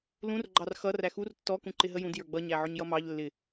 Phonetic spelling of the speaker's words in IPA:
lũr ɡ͡ǃɑrxʌ ræxur tːɔ kũǃɪɦəjũd jə˞ɡ͡bʌ ɲæʕʊɲjʌmɑʎ lːɪ

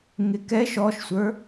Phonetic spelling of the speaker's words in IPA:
ŋɪkɛʃ ɔʃsʷə˞

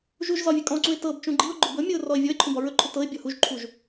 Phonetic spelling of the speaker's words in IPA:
ʒuʒzɒ vʲɵkʼɔ̃ǀũɪ̯ tɤbt͡ʃũ ɡ͡ǃiʊ̯ ɡ͡ǃʊbɵmʲɤʊ̯ rɔɪ̯vʲɔɪ̯ǃʰũ bɒɹɵǃʰʊ tɤɪ̯ bʲɔhuʒǃʰuʒ

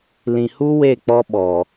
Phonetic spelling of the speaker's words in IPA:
lĩ˨hu˦ we˦˨k͡pɔ˦ɓɔ˨

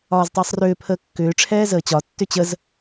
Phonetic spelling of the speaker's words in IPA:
ɒːztˤəːsˤrʏː pʰəːkːʏː ʈ͡ʂʰɛːzəːt͡ɕɒ tːʏt͡ɕəz

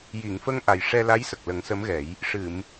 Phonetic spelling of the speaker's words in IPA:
ji˨˩˨ŋfə˧ŋ ʔa˨˩jʂɛ˧la˧˥j sə˨˩k̚lə˨˩˦ŋsə˧˥mɣɛ˨˩˦j | ʂɨ˨˩˨m

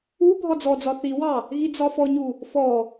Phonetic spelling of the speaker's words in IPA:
u bʱɒd͡zɔd͡zɒ θiwɑ | ɣid͡zɒfɔɲu | fɔ

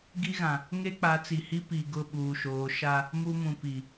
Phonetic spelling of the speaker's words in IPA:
ɡi˦ɣã˨ | ŋe˦k͡pa˨˦t͡si˨hi˦ pi˨ ɡʊ˦˨ɓuː˨ʃoː˨˦ ʃa˦ | mu˦mũ˨ pi˨

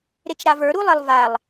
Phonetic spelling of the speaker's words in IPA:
ɾet͡ʃɾavə˞ ɾulˠelˠvalˠ

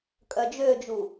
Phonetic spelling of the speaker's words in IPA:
kʼœd͡ʒød͡ʒu

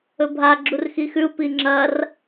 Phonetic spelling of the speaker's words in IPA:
ɵbʱa ɡ͡ǁurxixʉu̯ piŋ͡ǁɐr

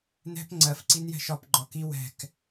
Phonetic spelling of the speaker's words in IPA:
nɛ̤p ŋ͡ǀɜf ǀinjɛ̤ʃɒp ɡ͡ǃɒki wɛ̤k

